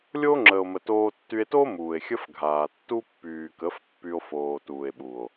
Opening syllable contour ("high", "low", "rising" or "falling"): high